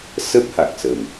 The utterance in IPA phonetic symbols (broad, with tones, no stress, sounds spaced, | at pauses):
s ə˦˥ p̚ h a˨˩ k̚ s ə˨˩ m